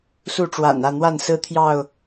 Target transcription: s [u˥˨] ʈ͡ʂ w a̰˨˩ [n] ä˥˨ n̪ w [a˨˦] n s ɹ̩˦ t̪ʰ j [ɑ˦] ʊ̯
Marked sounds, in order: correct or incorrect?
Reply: correct, correct, incorrect: a˥˨, incorrect: ɑ˥˨

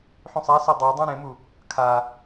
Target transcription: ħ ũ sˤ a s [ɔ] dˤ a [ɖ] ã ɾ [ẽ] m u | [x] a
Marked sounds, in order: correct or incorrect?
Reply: correct, incorrect: dˤ, correct, incorrect: kʰ

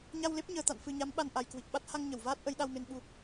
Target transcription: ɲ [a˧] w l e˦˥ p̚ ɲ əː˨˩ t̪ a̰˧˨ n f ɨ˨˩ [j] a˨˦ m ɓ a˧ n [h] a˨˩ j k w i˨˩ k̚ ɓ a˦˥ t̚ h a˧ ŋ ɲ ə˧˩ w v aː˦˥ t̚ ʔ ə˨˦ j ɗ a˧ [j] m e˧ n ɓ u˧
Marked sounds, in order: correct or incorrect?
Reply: correct, incorrect: ɲ, incorrect: ʔ, incorrect: w

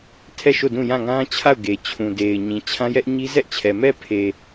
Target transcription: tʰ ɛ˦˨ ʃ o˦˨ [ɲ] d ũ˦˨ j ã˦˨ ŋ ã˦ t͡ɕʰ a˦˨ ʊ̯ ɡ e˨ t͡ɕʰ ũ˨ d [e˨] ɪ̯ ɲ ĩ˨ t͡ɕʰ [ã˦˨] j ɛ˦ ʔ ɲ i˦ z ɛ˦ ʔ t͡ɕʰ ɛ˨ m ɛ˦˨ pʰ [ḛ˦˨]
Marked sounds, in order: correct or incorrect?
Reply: incorrect: none, correct, incorrect: ã˦, incorrect: e˨

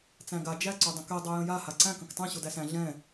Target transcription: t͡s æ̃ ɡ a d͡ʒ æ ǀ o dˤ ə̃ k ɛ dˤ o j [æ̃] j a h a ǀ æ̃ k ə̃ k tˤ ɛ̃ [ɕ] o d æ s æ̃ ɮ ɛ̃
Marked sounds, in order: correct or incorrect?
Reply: incorrect: ə̃, correct

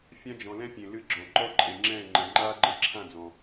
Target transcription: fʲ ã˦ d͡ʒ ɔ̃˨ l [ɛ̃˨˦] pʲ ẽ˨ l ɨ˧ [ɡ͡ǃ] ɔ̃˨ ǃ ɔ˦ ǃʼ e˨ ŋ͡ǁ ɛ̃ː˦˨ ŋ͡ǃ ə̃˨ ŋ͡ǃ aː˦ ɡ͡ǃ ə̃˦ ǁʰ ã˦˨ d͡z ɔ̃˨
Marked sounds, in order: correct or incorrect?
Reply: incorrect: ɛ̃˦, incorrect: ɡ͡ǁ

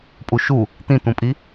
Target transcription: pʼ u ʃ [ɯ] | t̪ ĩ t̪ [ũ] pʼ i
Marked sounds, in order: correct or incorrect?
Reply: incorrect: u, correct

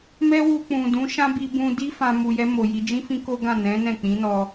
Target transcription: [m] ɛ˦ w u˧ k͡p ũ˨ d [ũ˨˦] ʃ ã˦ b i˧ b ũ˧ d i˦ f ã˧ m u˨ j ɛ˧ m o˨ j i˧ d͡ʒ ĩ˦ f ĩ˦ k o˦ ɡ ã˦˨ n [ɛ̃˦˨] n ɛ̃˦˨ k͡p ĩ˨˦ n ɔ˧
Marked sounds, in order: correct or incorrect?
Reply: correct, correct, incorrect: ɛ̃˨˦

